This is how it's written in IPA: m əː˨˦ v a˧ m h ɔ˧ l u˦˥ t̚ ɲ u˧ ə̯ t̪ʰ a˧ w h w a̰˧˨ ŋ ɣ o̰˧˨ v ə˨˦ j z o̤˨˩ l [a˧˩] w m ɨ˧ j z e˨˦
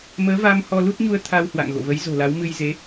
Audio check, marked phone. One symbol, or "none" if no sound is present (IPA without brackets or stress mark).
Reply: a˨˦